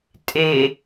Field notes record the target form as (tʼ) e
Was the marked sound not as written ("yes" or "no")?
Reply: no